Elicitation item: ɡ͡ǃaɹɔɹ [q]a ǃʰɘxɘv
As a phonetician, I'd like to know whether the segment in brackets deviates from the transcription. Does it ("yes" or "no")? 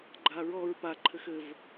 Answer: yes